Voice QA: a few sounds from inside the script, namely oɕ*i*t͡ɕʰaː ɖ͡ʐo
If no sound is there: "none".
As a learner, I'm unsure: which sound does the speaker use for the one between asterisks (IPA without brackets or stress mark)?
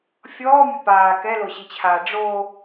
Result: i